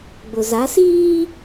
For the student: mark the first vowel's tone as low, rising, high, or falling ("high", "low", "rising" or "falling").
low